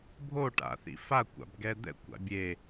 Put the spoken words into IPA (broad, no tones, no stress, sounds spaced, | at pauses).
bʱ o ʈ a̰ θ ḭ f a kʷ a̰ b ɡ ɛ d̪ ɛ̰ kʷ a̰ bʲ e